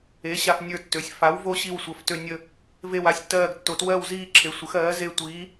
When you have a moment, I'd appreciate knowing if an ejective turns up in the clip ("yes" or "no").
no